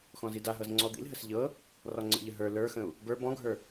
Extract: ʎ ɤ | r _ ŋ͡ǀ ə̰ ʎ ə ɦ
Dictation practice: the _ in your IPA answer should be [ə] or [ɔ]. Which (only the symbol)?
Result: ɔ